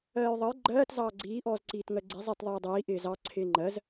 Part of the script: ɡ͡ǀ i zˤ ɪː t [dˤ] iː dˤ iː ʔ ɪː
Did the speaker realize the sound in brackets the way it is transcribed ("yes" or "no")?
no